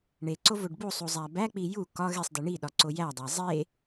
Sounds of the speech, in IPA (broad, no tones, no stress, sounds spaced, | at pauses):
ɳ e ǀ o v o ɖ b u sˤ u zˤ æ b æ k͡p i j u k ɒ ɣ e sˤ d i ɳ i ɗ ɒ ǀ o j æ dˤ æ zˤ e